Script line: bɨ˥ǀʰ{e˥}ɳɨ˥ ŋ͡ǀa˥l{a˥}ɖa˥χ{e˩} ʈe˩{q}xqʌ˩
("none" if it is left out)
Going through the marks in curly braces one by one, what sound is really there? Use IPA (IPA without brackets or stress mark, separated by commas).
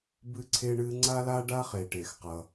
e˥, a˥, e˩, none